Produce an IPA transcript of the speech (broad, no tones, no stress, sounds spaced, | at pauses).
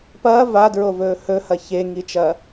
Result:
p ɐː v a d ɹ o v ɵː h ɵ h ɐ ç e ŋ i t͡ʃ ɐː